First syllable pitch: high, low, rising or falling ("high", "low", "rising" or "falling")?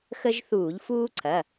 high